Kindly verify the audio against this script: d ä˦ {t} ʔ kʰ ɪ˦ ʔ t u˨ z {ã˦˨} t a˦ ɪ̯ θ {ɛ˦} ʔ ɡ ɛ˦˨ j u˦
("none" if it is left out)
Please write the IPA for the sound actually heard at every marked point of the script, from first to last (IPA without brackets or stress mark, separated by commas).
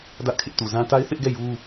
none, ã˦, ɪ˦